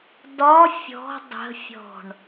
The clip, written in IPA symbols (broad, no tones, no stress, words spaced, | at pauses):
dɒ fʲɔ̤ dˤə̤fʲɔ̤ɳ